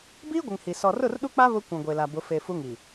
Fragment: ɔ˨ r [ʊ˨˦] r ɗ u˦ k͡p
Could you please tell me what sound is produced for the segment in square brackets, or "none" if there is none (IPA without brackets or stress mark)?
ʊ˦˨